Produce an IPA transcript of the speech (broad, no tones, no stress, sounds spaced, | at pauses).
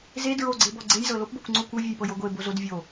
z e d ɹ o ɡ͡ǀ e b ɔ ɡ͡ǀ e j z ɤ l o p b o kʷ ŋ͡ǀ o kʷ ɤ vʲ e j p ɤ j o ɡʷ e b o z o d vʲ o